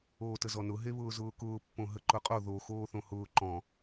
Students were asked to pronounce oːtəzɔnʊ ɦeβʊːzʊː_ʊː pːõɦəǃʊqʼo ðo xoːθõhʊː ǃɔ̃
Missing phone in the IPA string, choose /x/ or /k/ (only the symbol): k